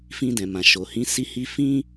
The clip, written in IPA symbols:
f ĩ˧ d ɛ̃˨ m ã˨ ʃ o˨ h ĩ˨˦ s i˧ h i˧ f ĩ˦

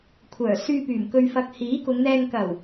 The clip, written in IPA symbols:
kʷʰ œː˨˩ s yː˧ p yː˨˩ m k ɵ˨ ɥ f ɐ˨ k̚ h iː˨˥ k ʊ˨˧ ŋ n̪ ɛː˧ ŋ k ɐ˨˩ w

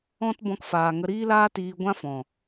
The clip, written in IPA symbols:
ɔ̃˦ t b ɔ̃˧ k f aː˨ ŋ ə˧ ɾ iː˦ l aː˦ t iː˧ ɡʷ ã˦ f ɔ̃˨

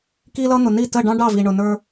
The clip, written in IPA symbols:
k i˧ l ʌ˧ n̪ ʊ˨ n i˦˨ t ə˦˨ ɖ ɑ̃˦ ɖ ɑ˦˨ v i˨ ɳ ʊ˨ n ə˞˧

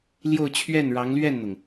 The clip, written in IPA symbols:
l j o˥˧ ʊ̯ t͡ɕʰ ɥ ɛ˥˩ n ɻ ɑ˧˥ ŋ l ɥ ɛ˥˩ n n̪ ʊ˩ ŋ

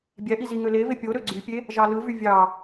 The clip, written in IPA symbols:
bʲ æ ʔ i z i ŋ ø l e v e pʲ o ɾ ø ɡ͡ǀ y pʲ e | ʒ ɑ l ɯ v y vʲ ɑ

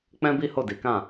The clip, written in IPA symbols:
k͡p ɛ̃˦ b i˦ h o˦˨ d i˨˦ k ã˦˨

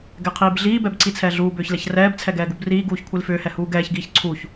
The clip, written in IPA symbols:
ɡ ɛ qʰ iː b ɮ iː b ɛ b ǀ i t͡sʰ ɛː ɮ uː b ʏː ç l ɛ ç r ɛː b t͡sʰ ɛ ɡ ɛː ɡ u b r iː ɡ uː ç kʷʰ i l f ʏː h ɛ h uː ɡ ɛː ç ɡ iː ç ǀʰ u ç

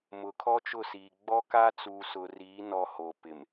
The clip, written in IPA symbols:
m ʊ˨˦ kʰ ɔ˦ t͡ʃ ʊ˦˨ s iː˨ ɡ͡b ɔ˦ k a˦ t͡s uː˨ s ʊ˨ r iː˨˦ n ɔ˨ h oː˨ p ɪ˨ m

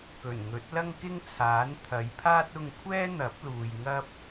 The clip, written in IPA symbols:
k ɵ˨˩ n ŋ ɵ˨˥ t̚ l ɐ˥ ŋ k ɪ˥ ŋ t͡sʰ aː˨˥ n t̪ʰ ɐ˨˧ j pʰ aː˥ t̚ ʊ˧ ŋ kʷʰ ɛː˥ n̪ ɐ˨˥ p̚ l uː˨ j ŋ ɐ˥ p̚

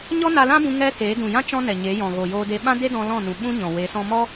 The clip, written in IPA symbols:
ɲ ɔ˦ n a˧ l ã˦ b ũ˧ ŋ ɛ˧ t eː˨˦ d ũ˨ j ã˦ t͡ʃ ɔ̃˦ n ɛ˨ ɲ e˨˦ j ɔ̃˨ ɣ o˨ j oː˧ d e˧ ɓ ã˦ d e˦ d ɔ̃˧ l ɔ̃˦˨ n ũ˨ ɓ ũ˦ ɲ ɔ̃˨ w e˨˦ s ɔ̃˧ m ɔ˦

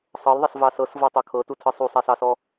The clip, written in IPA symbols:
sˤ ɤ l ðˤ ɛ s v ɑ s ɤ s v ɤ tˤ ɤ kʰ ɤ t u tʰ ɯ sˤ u sˤ ɛ s ɑ s ɔ

